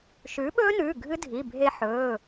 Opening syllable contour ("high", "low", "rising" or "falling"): rising